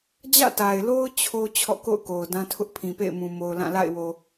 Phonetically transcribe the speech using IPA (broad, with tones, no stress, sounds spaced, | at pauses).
d͡ʑ ä̰˦˨ t a˨ ɪ̯ l o˦ ʊ̯ t͡ɕʰ o˦ t͡ɕʰ ɔ̰˦˨ k o̰˦˨ ʊ̯ k o˨ ʊ̯ d ã˦ tʰ ʊ˦ ʔ pʰ ĩ˨ p ḛ˦˨ ɪ̯ m ũ˨ m o˨ ʊ̯ l ã˦˨ l a̰˦˨ ɪ̯ w o˨